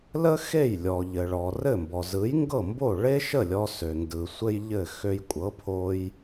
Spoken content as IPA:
l ə˥ x e˥˩ j lʲ ɔ˩ ʎ ɘ˩ ɭ ɔ˩ r ɘ˥˩ m b ɔ˩ z ɯ˩˥ j ŋ ɡ ɤ˥˩ m b o˥˩ ɭ e˥ ʃ ə˥˩ lʲ ɔ˧ s ø˩ n d ɯ˩ sʷ ɘ˥ j ʎ ɘ˥˩ x ø˧ j kʷʼ ɤ˩˥ pʰ o˧ j

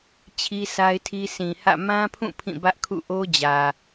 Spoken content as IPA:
t͡ɕʰ i˦ sʰ a˦ ɪ̯ tʰ i˦ s ĩ˨ h ä̰˦˨ m ã˦ pʰ ũ˦˨ pʰ ĩ˦˨ b ä˦ ʔ kʰ ṵ˦˨ ʔ o˦ d͡ʑ ä˨

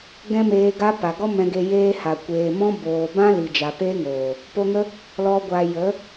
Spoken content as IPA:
ɡ ɛ̃˦ m eː˧ ɡ a˦ p a˨ ɡ ɔ˦ m ɛ̃˧ ɡ e˧ j eː˦ h a˨ kʷ eː˨ m ɔ̃˦ b oː˨ b ã˦ l i˨ d͡ʒ a˨ p eː˦ ŋ oː˨ | p o˧ ŋ ə˦ | l ɔ˨ ɡʷ a˨ j ə˨˦

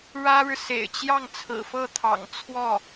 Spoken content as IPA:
ɻ ä˥ ɻ ɻ̩˨ s ḛ˨˩ ɪ̯ t͡ɕ j ɑ˥˩ ŋ t͡sʰ ɹ̩˨˩ f ɤ˥˩ t̪ʰ ɑ̰˨˩ ŋ t͡sʰ w ɔ˥˩

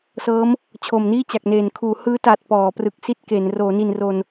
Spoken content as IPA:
s ɤː˦˥ m | t͡ɕʰ o˨˩ m n iː˥˩ t͡ɕ a˨˩ k̚ n eː˨˩ n kʰ uː˩˦ h ɯː˦˥ t aː˨˩ t̚ p ɔː˩˦ p r ɯ˨˩ k̚ s i˥˩ t̚ k e˩˦ n r oː˩˦ n i˨˩ n r o˨˩ n

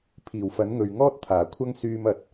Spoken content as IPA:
pʰ iː˨˩ w f ɐ˨˥ n ŋ ɵ˨ ɥ ŋ ɔː˥ t̚ t̪ʰ aː˨˩ kʷʰ ɐ˥ ŋ s yː˧ m ɐ˨˥ t̚

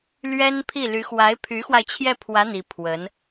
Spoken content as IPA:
l ɥ ɛ˥ n pʰ i˥˩ l y˧˥ x w a˧˥ ɪ̯ pʰ y˧˥ x w a˧ ɪ̯ t͡ɕʰ j ɛ˥˩ pʰ w ä˧˥ n̪ i˧˥ pʰ w ə˧˥ n

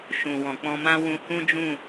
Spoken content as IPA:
ʃ ũ˨ w ɔ̃˨ k͡p ɔ̃˧ m ã˦ w ũ˧ h ũ˦ d͡ʒ ũ˦˨

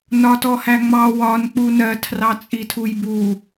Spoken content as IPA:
n ɒ t ɔ h æ ŋ͡m ɑ w ɒ n k͡p u n ɜ tʰ r ɑ t͡sʼ i tʰ u j b u

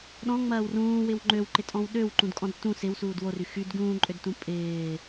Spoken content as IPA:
ɗ ɔ̃ ŋ͡m ɐː w r ũː w ɪ w ŋ͡ǃ ø w ǃ ɪ tʼ ɔ̃ w ɗ ø w ǃ ũ d kʼ ɔ̃ d t ũ s ɪ w s uː d w o r y x y d ɡ ũː ǃʼ ø d t ũ pʼ ɪː

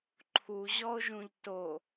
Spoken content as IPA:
ǃʰ u ʑ ɔ o̯ ʒ ũ ʎ t o

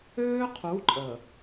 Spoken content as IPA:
øː˦ qʰ u˨˦ ǃʼ ə˨

